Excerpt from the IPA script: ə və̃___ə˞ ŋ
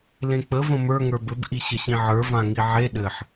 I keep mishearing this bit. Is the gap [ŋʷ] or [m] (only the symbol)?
m